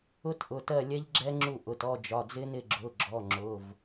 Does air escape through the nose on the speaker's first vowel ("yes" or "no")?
no